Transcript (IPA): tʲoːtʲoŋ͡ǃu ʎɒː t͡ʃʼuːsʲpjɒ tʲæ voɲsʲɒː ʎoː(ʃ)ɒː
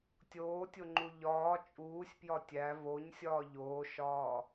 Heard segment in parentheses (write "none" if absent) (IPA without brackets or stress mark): ʃ